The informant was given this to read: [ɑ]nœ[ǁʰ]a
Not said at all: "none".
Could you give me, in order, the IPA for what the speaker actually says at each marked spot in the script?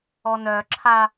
ɔ, ǁʰ

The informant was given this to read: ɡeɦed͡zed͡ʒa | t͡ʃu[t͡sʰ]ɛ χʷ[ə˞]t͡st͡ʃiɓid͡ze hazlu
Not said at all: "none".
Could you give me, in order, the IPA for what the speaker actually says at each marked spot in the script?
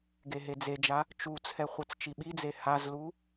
t͡sʰ, ə˞

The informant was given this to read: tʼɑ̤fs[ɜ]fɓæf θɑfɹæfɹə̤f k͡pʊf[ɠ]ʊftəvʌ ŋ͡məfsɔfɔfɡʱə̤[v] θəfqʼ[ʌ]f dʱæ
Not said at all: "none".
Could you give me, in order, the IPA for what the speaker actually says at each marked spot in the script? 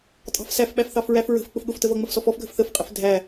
æ, ɠ, f, ə

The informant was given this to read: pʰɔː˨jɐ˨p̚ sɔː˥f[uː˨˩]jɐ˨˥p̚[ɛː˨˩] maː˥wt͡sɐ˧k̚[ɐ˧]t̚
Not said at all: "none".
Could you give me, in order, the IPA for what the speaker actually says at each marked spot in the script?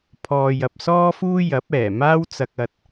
uː˥, ɛː˨˩, ɐ˧

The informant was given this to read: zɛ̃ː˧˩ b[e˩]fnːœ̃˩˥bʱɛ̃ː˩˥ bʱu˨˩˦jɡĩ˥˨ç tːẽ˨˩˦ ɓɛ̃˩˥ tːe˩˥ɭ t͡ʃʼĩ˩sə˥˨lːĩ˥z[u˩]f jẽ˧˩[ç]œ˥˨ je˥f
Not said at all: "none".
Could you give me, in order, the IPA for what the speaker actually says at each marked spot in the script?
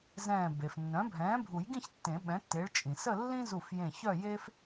e˩, u˧˩, ç

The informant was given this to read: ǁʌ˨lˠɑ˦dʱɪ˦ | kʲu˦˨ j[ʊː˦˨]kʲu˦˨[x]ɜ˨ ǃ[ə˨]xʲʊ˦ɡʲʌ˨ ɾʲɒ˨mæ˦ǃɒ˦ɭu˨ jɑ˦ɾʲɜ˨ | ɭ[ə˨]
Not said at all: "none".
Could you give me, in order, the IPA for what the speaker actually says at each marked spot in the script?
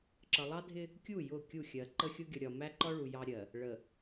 ʊ˦˨, xʲ, ə˦, ə˨

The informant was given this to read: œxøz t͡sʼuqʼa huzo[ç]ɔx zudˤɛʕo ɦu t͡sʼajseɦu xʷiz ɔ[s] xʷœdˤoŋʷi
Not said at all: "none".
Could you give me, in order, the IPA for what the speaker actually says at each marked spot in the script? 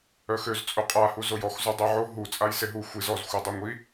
j, z

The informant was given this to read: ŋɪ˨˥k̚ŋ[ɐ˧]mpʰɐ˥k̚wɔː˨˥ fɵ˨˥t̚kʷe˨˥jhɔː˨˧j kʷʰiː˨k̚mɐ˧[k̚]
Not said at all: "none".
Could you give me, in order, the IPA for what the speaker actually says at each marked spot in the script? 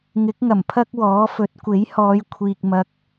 ɐ˨˩, k̚

